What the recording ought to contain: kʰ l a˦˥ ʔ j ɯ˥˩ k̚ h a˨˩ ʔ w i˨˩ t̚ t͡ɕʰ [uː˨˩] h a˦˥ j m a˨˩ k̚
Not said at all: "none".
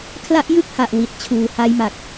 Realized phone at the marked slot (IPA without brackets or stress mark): uː˨˩